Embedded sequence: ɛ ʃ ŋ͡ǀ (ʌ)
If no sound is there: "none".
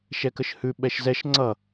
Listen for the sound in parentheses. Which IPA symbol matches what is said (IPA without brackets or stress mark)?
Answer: ʌ